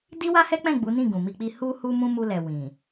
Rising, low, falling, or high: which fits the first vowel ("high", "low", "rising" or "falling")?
high